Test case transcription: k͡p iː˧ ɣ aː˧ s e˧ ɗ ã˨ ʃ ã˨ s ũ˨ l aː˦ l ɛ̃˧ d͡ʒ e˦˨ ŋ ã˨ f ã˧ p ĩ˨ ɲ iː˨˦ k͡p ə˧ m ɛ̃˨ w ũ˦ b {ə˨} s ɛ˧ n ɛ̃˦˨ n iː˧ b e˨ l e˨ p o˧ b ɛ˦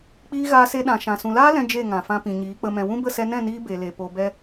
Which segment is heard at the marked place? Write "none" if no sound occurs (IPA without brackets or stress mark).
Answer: ə˦˨